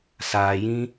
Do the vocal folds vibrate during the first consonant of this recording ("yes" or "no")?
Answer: no